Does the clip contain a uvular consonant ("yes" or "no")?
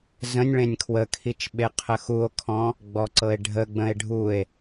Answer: yes